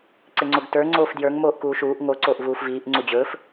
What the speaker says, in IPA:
ǀ ɪ ŋ͡ǀ o ɡ t ə˞ ŋ͡ǀ oː f d j ə˞ ŋ m oː ʔ k uː ʃ uː ʔ ŋ o ǀ oː ʔ v uː f v iː ʔ ŋ͡ǀ u d͡ʑ ɵː f

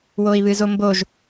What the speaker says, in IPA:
w o i̯ β ɨ z o m b o ʒ

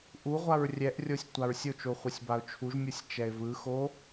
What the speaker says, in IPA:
ʔ u ʁʷ a ɹ rʲ ɛ ʔ rʲ o sʲ tʷ a ɹ sʲ o t͡ʃ o χʷ e sʲ b a ʊ̯ t͡ʃʰ u ʒ mʲ ɯ sʲ t͡ʃ ɛ ɪ̯ v ɯ x o

